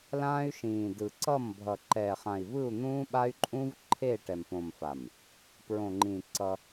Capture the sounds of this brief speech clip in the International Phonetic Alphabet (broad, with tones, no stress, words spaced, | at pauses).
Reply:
lãː˦y̯ʃĩː˨dɯ˨ ǀʌ˦˨m bʱʌ˨ǃɛ˨χã˨i̯vɯ˦˨u̯ n̪ũː˦ɓa˦y̯ǃʼũ˦v ǃʰe˦˨ ʈɛ˨mpõ˨mfa˨m | pɹõ˨ŋ͡ǃĩ˨ ǀʌ˦